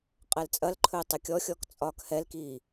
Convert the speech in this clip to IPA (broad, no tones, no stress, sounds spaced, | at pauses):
qʼ ɛ l t͡sʼ ɐ l ǃʰ ɵː tˤ ə kʲ ɔ xʲ ɔ k t͡sʼ ɒː k h ɛ l k iː